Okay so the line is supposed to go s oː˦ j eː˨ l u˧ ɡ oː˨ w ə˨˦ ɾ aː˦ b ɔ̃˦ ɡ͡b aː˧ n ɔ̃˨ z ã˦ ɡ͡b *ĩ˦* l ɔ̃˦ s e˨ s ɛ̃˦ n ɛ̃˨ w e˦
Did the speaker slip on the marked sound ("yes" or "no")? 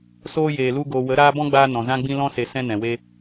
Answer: no